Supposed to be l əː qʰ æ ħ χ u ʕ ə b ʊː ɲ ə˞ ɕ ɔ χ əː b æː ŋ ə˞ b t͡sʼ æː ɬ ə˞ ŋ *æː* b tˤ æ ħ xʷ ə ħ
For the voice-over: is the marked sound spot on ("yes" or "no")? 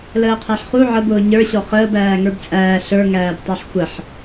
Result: yes